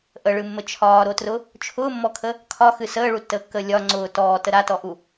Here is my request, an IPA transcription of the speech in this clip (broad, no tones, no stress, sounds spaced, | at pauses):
ʔ ə ɭ ɨ mː ə t͡ʃʰ ɒː ɾ o t r ʊ | t͡ʃʰ ʊː mː ɔ kʰ ə | kʰ ɒ x ɨ s əː ɭ u tː əː kː əː lʲ ɒ ŋ͡ǀ ʊː t ɔː t ə ɾ a t ɔ ʔ u